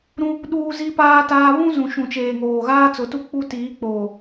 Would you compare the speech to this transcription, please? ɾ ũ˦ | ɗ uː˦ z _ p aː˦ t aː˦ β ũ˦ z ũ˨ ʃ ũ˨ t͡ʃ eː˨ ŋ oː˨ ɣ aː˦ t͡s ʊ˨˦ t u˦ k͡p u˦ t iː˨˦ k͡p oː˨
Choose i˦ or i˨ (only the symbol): i˦